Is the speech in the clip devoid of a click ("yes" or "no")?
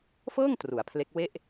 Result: yes